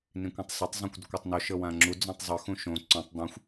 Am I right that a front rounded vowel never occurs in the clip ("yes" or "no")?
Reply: yes